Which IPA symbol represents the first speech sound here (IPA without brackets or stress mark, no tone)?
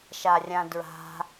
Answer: ʃ